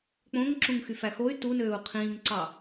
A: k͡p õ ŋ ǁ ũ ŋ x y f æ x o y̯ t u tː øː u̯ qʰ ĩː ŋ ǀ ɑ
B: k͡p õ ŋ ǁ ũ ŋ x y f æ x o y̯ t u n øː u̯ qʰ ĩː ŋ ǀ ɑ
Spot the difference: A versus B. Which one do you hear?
B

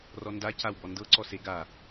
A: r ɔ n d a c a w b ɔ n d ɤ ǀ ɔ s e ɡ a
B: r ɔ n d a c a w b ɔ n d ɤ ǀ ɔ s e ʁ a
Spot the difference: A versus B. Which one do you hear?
A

